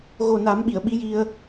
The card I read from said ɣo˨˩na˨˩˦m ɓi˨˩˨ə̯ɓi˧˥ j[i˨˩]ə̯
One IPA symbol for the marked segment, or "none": i˧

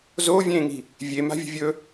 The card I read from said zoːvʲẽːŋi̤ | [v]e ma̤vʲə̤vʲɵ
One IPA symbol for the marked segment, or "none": vʲ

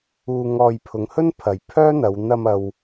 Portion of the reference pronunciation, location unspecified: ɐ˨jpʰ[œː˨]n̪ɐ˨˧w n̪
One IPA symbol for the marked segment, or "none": œː˥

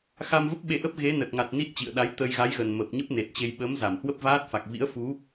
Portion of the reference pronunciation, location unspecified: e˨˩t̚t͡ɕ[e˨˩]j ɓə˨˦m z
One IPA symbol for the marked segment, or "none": e˧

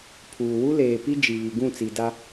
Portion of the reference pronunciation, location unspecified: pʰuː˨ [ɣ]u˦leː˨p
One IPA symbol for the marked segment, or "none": w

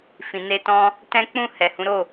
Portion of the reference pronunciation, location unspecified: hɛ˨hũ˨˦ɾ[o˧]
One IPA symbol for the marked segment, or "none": o˦˨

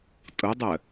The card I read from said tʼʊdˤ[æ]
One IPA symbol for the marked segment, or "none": ə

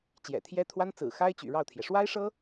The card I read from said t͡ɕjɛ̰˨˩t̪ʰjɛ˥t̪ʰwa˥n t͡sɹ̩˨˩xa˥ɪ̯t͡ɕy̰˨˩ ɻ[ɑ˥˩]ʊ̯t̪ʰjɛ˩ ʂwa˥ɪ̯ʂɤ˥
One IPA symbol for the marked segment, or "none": ɑ˥˩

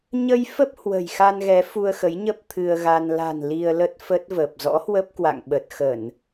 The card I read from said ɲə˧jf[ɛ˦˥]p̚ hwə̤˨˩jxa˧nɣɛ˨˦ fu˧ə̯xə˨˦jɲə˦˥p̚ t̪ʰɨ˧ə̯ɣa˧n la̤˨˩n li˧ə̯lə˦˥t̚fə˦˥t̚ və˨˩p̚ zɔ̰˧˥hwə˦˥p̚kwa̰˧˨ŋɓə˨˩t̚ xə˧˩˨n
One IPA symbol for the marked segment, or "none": ə˦˥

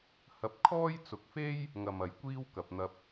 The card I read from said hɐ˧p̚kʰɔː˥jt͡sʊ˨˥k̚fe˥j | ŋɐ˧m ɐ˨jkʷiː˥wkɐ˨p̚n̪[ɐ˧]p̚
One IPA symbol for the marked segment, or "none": ɐ˧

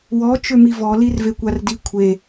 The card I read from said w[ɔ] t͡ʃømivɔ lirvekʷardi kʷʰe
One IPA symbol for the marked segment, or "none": ɔ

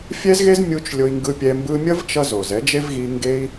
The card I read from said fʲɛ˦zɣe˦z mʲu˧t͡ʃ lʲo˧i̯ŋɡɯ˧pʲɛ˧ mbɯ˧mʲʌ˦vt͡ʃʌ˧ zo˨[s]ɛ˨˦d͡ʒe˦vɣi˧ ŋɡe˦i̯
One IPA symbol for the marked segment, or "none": z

